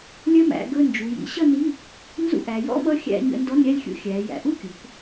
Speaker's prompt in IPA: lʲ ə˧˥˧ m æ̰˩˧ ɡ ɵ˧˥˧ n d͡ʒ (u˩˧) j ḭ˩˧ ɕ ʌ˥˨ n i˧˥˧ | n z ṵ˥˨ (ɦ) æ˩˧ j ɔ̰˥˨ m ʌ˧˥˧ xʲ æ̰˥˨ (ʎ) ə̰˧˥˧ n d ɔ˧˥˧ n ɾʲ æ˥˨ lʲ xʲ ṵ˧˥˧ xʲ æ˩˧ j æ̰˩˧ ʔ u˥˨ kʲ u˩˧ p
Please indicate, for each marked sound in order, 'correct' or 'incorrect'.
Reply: correct, incorrect, incorrect

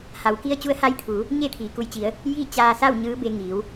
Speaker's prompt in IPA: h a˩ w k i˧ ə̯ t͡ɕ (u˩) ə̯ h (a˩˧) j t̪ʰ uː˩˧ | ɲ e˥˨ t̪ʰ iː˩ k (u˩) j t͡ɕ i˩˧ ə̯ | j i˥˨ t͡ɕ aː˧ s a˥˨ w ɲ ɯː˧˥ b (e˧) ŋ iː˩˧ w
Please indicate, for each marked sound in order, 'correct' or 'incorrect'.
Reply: incorrect, incorrect, incorrect, correct

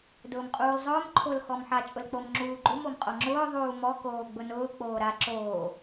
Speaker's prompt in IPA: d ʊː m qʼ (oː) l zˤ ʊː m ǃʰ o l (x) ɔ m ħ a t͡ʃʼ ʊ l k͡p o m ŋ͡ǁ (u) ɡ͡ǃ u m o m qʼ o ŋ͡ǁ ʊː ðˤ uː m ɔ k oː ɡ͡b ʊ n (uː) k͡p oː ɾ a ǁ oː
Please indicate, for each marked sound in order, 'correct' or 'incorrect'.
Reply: incorrect, correct, incorrect, incorrect

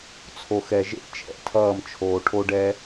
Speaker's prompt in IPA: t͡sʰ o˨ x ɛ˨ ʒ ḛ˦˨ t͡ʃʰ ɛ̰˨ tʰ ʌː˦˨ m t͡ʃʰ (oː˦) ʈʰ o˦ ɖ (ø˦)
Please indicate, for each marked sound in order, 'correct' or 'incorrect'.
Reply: incorrect, incorrect

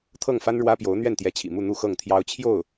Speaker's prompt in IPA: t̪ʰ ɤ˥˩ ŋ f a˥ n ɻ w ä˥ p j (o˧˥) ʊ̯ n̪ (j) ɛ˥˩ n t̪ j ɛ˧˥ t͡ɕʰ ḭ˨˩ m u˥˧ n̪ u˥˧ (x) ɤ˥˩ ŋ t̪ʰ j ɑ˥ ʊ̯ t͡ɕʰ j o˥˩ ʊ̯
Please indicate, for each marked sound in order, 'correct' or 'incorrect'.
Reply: correct, incorrect, correct

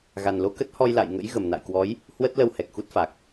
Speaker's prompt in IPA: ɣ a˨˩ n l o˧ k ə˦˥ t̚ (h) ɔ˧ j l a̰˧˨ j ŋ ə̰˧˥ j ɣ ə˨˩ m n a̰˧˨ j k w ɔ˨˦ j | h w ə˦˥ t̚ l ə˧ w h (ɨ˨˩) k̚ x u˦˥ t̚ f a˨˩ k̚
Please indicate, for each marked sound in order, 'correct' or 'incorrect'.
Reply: correct, incorrect

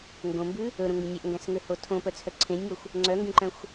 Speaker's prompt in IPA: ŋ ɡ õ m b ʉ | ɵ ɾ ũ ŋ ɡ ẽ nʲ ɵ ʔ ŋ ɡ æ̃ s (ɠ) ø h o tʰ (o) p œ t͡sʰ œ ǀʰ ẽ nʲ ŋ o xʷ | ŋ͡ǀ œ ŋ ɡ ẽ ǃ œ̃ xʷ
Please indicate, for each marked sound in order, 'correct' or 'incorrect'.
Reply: incorrect, incorrect

